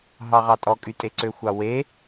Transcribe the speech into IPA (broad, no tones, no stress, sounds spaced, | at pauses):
ɦ ɑ ʁ ɑ tʼ ɔ kʼ y tʼ e ǀ ø xʷ ɑ w e